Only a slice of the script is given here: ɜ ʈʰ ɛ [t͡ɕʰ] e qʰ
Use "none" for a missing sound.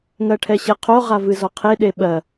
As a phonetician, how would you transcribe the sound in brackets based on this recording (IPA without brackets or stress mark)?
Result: ɕ